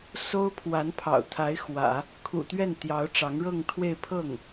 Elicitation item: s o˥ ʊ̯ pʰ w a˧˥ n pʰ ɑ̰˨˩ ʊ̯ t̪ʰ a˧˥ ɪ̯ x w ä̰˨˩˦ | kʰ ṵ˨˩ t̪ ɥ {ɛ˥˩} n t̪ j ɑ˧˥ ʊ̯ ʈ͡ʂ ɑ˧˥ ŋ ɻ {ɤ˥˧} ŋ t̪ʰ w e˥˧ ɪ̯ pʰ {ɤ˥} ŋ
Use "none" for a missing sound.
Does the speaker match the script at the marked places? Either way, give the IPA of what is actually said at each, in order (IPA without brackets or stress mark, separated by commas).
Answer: ɛ˥˩, ɤ˥˧, ɤ˥˩